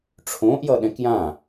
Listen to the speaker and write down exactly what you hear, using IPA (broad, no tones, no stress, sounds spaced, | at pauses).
ʈ͡ʂʰ õː ʔ j ʌ ɗ ɛ̃ k j ã